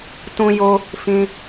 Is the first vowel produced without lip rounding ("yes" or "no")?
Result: no